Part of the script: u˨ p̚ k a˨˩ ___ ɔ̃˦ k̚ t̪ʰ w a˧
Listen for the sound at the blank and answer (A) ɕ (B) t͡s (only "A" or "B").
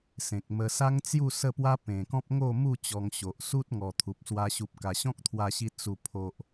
A